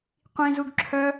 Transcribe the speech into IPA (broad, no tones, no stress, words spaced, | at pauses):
qʷĩzuɡ ǁʰœ